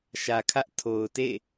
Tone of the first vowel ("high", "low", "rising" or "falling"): low